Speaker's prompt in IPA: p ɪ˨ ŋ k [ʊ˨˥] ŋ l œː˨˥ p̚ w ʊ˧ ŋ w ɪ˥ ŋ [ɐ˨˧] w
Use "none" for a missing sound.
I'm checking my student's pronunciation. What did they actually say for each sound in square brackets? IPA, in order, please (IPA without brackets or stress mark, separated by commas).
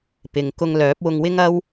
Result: ʊ˧, ɐ˥